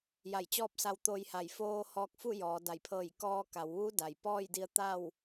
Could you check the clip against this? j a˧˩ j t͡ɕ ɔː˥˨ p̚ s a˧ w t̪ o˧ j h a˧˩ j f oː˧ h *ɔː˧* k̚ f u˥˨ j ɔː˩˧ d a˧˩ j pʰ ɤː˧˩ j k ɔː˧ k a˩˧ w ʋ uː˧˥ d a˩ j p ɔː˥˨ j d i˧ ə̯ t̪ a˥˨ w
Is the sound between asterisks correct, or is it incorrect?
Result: correct